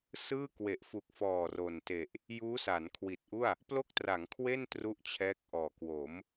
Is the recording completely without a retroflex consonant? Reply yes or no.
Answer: yes